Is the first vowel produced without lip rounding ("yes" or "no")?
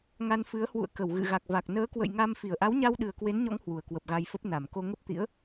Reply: yes